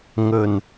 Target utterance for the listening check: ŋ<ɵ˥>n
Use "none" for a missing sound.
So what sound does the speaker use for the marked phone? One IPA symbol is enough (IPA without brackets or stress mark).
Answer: ɵ˨˩